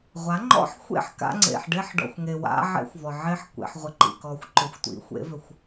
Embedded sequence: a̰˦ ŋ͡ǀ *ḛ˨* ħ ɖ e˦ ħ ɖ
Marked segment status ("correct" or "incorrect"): correct